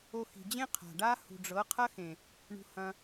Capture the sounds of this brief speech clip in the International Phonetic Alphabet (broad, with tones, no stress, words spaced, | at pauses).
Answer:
o˧xi̤˨d͡ʑẽ˦ qʰa̤˨ɖa˦ hṳ˨ɖ͡ʐɤ˨˦qʰɐ˦xẽ˨ | ɳṳ˧hɐ̃˧